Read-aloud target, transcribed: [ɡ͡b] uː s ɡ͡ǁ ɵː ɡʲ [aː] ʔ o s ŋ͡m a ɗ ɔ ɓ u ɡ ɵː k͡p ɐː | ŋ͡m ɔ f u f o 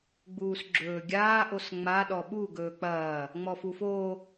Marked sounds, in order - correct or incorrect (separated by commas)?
correct, correct